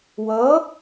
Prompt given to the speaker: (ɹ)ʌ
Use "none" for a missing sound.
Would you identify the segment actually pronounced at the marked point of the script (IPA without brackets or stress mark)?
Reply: w